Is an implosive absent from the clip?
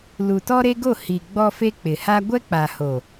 yes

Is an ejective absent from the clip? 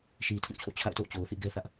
yes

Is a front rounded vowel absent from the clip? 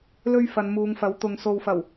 yes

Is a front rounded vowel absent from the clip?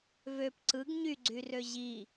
no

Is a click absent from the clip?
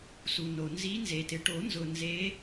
yes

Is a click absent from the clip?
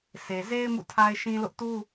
yes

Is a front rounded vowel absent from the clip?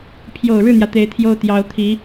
yes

